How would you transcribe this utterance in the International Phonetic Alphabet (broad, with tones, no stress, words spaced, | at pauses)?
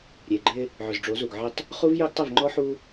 ɾʲe˨ɡ͡ǃɪ˦ | ʕʏ˨zɖ͡ʐo˨˦zu˨ɡ ʕɪ˦˨tˤ | χu˦vjœ˦ɡtˤɪ˦˨v ŋ͡ǃɔ˦ħu˦